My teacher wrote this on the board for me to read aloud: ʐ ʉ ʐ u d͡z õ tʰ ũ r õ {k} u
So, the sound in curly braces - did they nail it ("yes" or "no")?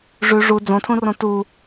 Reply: no